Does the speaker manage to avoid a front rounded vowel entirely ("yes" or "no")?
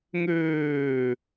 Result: no